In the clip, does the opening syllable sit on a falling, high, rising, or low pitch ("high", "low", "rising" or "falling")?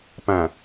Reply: low